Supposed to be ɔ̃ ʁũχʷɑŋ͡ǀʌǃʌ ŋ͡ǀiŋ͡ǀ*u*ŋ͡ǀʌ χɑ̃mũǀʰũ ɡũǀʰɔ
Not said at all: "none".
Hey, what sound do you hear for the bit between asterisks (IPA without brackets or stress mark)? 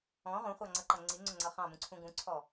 ʊ